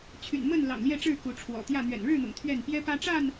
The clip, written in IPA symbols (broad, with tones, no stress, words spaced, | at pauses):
t͡ɕʰy̰˨˩nmə˥˨nlɑ̰˨˩ŋ ljɛ˥˨ʈ͡ʂɻ̩˥˨ ku˨˦ʈ͡ʂʰwɔ̰˨˩t̪jä˥˨ n̪ɥɛ̰˨˩nɻɻ̩˥˨n̪ʊ̰˨˩ŋ t̪ʰɥɛ˥˨n pjɛ˦pä˦ʈ͡ʂa˥˨n